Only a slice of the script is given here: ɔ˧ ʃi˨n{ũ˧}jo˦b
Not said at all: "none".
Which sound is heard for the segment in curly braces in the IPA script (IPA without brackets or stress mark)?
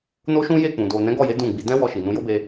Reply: ũ˧